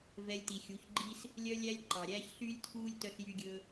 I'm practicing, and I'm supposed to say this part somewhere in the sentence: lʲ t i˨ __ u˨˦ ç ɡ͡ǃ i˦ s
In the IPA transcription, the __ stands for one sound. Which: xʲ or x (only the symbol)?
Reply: xʲ